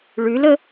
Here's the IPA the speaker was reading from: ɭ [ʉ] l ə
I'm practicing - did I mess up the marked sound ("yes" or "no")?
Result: no